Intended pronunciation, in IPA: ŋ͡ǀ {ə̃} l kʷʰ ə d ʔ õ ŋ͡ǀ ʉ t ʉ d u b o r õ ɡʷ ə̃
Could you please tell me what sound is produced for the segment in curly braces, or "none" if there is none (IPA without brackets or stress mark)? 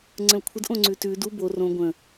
ə̃